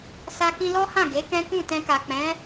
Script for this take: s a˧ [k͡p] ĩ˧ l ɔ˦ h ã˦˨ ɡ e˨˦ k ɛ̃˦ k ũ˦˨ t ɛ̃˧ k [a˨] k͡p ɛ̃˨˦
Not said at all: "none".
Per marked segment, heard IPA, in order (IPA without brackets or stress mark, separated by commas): k, a˨